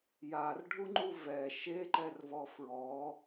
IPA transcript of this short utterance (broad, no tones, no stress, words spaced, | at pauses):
jarɖʱuŋ͡ǃu vɛ ʃeǃɛrvɔ fɹɔ